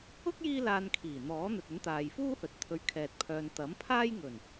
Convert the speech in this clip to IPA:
ʊ˥k̚ jiː˥laː˧nkʰiː˨˩ n̪ɔː˨˥n̪ɵ˨t̚ɵ˨˥n t̪aː˨jfuː˥hɵ˨t̚ t̪ʰɵ˨˧ɥkʰɛː˨t̚pʰœː˨n t̪ɐ˨˥mpʰaː˥jŋɵ˨˩n

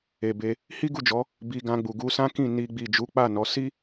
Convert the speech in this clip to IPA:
e˨be˧ | hi˦ɡu˦˨d͡ʒɔ˨˦ | bi˧ɡã˧ɡ͡bu˨ ɡu˧sã˦kĩ˦˨ ni˧ɡ͡bi˨ d͡ʒu˨˦k͡pa˦˨nɔ˨˦ si˦

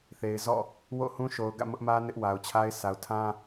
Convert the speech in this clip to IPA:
θe˨ɪ̯zɔ̰˦˨ | wo̰˦˨hũ˦ʃo˨ʊ̯ ɡä̰˦˨mʊ˦ʔmä˦ nɪ˦ʔwa˨ʊ̯t͡ɕʰa˦ɪ̯ sʰa˨ʊ̯tʰã˦

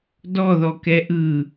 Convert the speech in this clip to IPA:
dɔðɔkɛ ʔɯ

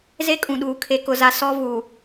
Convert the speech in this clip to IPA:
ze˦kʼũ˨ɗuː˨ kʰe˦kʊ˦za˦ sɔ˦ vu˨

